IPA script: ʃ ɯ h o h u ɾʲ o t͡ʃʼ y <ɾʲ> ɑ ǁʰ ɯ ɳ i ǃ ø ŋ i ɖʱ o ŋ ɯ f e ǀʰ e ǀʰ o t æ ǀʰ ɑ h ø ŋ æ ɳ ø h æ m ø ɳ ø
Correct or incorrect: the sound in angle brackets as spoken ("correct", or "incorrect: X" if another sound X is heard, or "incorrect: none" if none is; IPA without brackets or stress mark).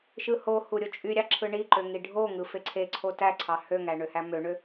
correct